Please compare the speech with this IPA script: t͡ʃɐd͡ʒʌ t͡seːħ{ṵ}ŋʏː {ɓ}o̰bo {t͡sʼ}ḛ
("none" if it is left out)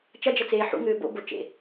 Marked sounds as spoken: ṵ, b, t͡ʃ

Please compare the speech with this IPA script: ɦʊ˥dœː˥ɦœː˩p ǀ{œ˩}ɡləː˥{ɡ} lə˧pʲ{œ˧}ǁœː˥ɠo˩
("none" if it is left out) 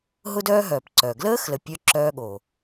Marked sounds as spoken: œ˩, x, œ˥

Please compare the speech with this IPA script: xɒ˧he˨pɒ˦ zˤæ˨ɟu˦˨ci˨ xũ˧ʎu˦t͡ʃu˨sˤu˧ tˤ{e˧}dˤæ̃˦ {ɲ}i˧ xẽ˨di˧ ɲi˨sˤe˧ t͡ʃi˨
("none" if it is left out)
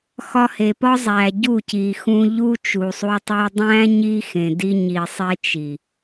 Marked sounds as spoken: e˧, ɲ

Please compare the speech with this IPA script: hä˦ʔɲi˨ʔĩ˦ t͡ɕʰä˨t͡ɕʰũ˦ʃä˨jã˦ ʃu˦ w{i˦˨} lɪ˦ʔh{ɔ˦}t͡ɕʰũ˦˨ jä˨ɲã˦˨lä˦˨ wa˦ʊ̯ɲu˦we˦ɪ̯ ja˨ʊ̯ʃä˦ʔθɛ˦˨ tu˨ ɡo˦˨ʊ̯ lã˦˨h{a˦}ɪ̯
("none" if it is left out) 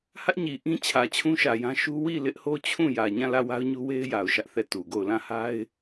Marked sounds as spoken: i˦˨, o˦, a˦

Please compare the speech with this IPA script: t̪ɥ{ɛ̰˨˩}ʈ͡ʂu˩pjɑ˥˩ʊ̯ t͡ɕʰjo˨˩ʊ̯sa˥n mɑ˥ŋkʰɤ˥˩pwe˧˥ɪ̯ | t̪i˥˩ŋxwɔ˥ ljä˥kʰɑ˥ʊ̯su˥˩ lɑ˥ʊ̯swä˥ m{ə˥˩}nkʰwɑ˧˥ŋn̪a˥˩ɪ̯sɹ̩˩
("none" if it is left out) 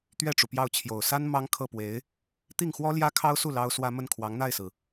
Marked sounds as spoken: ɛ˥˩, ə˥˩

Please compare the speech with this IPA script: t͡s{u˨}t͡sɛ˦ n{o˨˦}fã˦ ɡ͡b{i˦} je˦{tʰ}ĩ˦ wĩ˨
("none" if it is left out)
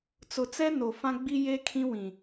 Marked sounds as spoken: ʊ˨, o˨, i˦, kʰ

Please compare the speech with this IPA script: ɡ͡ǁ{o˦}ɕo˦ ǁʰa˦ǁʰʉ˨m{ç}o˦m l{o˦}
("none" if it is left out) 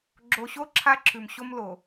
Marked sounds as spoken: o˨, ɕ, o˨

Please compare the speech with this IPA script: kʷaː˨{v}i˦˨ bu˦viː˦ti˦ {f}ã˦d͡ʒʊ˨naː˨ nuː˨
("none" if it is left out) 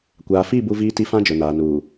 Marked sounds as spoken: f, f

